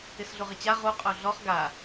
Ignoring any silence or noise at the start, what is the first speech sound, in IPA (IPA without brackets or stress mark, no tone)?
ɪ